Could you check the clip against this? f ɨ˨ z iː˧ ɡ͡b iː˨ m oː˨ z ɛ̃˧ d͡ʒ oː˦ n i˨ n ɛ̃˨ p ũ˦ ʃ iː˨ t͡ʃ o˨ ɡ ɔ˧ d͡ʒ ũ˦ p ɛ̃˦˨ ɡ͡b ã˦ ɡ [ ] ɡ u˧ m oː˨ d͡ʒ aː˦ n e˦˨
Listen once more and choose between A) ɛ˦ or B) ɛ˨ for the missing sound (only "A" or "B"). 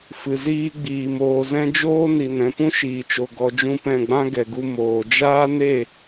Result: B